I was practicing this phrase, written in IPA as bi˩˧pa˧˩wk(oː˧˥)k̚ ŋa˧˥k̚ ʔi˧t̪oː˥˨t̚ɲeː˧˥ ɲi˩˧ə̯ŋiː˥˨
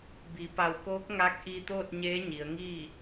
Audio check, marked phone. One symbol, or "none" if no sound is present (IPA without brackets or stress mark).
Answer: oː˧˥